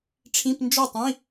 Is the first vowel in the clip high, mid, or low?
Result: high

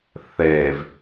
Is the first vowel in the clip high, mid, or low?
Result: mid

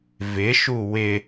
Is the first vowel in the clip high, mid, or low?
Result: high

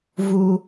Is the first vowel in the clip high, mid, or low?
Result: high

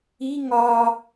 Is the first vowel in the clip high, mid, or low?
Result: high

